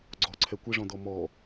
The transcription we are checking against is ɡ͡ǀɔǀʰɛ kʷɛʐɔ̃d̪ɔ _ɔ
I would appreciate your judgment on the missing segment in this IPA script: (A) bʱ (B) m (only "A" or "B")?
B